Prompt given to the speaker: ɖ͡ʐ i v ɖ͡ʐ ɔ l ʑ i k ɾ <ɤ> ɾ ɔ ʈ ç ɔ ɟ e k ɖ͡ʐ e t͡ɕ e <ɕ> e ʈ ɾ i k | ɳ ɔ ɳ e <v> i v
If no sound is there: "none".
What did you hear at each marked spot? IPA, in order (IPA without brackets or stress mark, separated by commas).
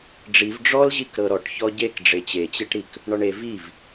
ɤ, t͡ɕ, v